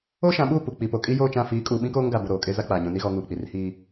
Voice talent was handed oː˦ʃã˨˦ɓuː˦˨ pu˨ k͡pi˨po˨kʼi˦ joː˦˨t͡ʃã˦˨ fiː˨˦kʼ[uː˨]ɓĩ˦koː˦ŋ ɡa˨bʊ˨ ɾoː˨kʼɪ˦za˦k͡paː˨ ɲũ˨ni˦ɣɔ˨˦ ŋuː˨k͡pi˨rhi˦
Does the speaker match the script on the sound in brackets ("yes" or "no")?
yes